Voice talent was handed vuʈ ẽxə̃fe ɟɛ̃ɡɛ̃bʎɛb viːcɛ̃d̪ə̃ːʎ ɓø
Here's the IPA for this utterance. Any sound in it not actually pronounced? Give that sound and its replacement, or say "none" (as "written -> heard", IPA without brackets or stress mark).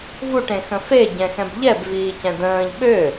ɡ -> x